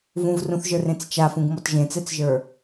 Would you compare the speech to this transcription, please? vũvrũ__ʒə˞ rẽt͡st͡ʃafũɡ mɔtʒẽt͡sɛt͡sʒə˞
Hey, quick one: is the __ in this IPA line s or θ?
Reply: θ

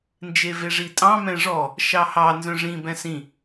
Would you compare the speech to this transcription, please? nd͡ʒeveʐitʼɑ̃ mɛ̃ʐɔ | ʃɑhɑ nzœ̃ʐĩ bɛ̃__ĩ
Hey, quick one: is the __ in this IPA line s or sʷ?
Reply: s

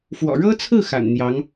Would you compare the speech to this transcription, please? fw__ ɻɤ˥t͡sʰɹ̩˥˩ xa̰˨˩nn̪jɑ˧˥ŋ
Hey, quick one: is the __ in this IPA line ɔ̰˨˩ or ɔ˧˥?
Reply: ɔ̰˨˩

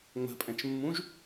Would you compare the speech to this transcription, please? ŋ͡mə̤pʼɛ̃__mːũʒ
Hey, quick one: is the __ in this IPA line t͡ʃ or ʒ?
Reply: t͡ʃ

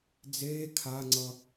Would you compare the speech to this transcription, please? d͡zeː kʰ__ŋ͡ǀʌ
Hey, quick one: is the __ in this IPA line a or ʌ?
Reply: a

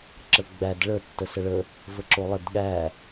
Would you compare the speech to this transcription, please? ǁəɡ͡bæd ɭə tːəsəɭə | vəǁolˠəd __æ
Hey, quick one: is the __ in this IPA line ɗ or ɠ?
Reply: ɠ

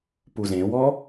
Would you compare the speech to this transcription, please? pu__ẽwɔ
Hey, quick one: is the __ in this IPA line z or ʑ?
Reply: z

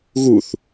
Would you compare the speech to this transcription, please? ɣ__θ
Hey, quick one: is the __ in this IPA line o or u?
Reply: u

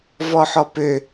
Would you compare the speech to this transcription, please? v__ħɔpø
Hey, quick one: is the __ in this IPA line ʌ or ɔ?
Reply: ɔ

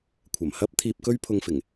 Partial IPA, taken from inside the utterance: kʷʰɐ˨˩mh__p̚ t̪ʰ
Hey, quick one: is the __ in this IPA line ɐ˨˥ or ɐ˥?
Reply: ɐ˥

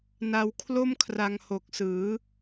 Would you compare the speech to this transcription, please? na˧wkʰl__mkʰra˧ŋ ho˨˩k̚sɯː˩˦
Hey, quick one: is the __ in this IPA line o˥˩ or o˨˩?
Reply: o˥˩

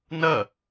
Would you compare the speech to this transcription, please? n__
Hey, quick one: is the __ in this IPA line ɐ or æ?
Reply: ɐ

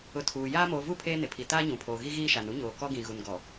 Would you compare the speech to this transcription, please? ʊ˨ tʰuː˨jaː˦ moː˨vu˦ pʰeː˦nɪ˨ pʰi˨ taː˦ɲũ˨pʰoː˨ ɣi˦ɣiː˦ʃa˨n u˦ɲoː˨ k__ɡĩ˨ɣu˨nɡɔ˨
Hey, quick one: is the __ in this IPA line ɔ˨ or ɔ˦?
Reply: ɔ˦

